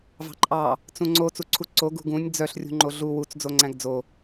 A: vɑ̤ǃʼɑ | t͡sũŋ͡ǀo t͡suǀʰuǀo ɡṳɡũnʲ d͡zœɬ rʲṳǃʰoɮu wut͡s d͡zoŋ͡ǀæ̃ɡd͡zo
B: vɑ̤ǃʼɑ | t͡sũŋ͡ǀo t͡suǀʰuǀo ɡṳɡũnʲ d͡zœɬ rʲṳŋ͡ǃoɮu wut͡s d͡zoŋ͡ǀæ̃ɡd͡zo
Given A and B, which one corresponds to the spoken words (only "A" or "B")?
B